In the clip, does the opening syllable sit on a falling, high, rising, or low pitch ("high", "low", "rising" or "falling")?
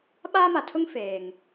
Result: high